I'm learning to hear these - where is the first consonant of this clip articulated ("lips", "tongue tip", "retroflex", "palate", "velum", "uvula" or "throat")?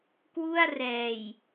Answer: velum